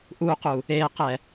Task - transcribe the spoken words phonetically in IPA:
ʔuqu | eqɛ

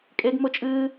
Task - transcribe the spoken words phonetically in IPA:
kʼeɡ mot͡ʃʼɨː

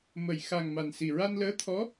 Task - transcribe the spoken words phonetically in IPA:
mə˨˩˨jxa˨˩ŋ ma˨˩nsi˨˩ ɹa˧nləː˧˥t̪ʰɔ˧˥

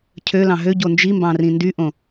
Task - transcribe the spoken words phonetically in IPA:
cʰølɑ̃ ɦøɟo nd͡ʒimbɑ̃rĩ ndyʔõ

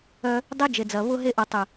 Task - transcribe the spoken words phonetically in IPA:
œ˧ | dˤe˦d͡ʒe˨d͡zɐ˨ βʊ˧ɦe˧ʔʊ˨ tˤʏ˨

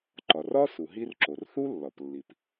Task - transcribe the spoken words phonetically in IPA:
ǃɒ˩rɒ˥ su˩ɦi˥rǁo˩r θu˥lːɒ˩plːi˩p

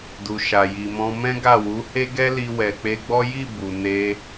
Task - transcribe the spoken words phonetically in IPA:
du˨ʃa˨ji˨mɔ̃˧ mɛ̃˦ ɡa˦˨wu˨˦ he˦ɡɛ˦li˧ wɛ˨k͡pe˧ɡ͡bɔ˦ ji˦˨ bu˨ ne˧

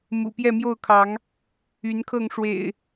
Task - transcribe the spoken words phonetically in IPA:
mṵ˨˩pjɛ˥˨mjo˥˨ʊ̯kʰɑ˨˦ŋ | y˨˦nkʰɤ˥˨ŋ ʂwḛ˨˩ɪ̯

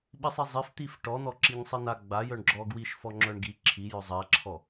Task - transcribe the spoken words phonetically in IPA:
ɓisˤizˤif t̪ifʈɔ n̪ɔǁiɲsˤin̪a ɡ͡ba jœɳɡ͡ǁɔɡwiʃ fɔŋ͡ǁœɳɡi ǁʰi jœzˤaǁʰɔ

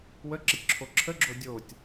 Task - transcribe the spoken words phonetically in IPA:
wəǁətʲǁʰo ǁʰəɡ͡ǁo dʲotʲ

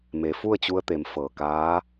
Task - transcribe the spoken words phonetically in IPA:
me˩˧fu˥˨ə̯t͡ɕu˧ə̯ t̪e˩˧mfɤː˩kaː˧˥

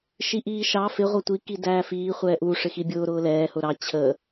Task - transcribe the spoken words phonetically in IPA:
ʃiʔiːʃɑ fɪ ʁʷʌtʷi kidæːfiː χʷɛːʔu ʂɪxibʲʊː ɾʊːlɛː hʊɾɑ t͡ɕʰə

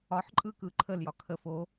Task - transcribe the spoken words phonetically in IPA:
ɒħǃʼɯ kɯǃʰəljɒ kʰə fo

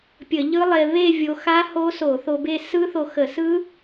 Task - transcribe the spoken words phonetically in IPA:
pʲə˧˩˧ʎɯ˦˥lˠe˧ βe˥˧vʲo˧xa˦˥ ho˦˥so˧˩˧θo˧be˥˧ sɯ˦˥θo˧xə˧˩˧sɯ˦˥

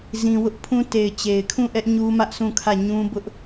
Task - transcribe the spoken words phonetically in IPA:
zĩ˨wʊ˦ʔpʰũ˦ te˨ɪ̯t͡ɕe˨ɪ̯kʰũ˦˨ ʔɛ˦ʔɲu˦ mä˦ʔsʰũ˦˨kʰä˦˨ ɲũ˦bʊ˦ʔ

